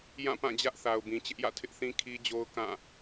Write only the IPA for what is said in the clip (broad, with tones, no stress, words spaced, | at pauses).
jã˦˨pã˦˨d͡ʑä˦ʔ θa˨ʊ̯bĩ˨t͡ɕɪ˦ʔjä̰˦˨ tʰɪ˦ʔθĩ˦ kʰi˦d͡ʑo˦ʊ̯ kã˦˨